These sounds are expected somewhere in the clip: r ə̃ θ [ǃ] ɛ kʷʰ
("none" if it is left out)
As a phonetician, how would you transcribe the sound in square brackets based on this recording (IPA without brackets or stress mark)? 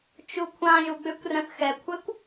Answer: x